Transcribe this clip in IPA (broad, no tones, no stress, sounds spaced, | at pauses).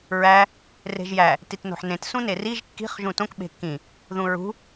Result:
ɹ æ | r e̤ ʒ j æ | t i t n o̤ ħ n ẽ t s ũ n e r i ʒ kː i̤ χ ʒ ũ t õ k ɓ e̤ kː ĩ | ð ũ ɹ ṳ